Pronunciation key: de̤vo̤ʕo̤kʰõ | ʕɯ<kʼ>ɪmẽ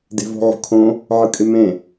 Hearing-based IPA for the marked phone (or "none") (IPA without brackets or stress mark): kʼ